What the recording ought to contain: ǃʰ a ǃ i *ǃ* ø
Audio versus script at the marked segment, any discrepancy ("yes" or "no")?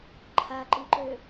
no